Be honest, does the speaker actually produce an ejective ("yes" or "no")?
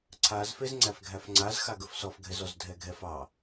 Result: no